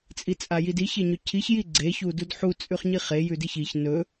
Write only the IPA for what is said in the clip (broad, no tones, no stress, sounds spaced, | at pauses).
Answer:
t͡sʼ i t͡sʼ a j i d i ç e ɲ ɵ cʰ i ç j i ɡ͡ǀ e ç u d u d ħ u t͡sʼ ʉ χ ɲ i χ e j ʉ d i ç i ç n ɵ